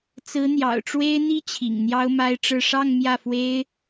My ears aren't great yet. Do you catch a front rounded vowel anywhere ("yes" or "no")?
no